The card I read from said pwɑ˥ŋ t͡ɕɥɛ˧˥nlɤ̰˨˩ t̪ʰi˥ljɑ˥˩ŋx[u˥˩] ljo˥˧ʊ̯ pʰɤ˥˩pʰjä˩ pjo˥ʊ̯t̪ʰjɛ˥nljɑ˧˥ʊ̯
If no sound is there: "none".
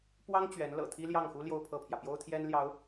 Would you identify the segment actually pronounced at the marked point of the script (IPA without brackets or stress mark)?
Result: u˥